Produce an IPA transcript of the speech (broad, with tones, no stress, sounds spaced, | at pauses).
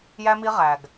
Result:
j æ˧ m i˧ ʁ æ˨ ɡ